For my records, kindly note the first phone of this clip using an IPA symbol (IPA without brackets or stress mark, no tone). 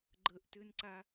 ɡ͡ǃ